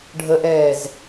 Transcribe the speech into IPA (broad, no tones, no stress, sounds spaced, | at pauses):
ɖʱ ə ʔ ɛː z